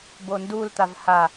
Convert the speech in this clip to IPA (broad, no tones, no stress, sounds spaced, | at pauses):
b o n d u l t̪ a v h a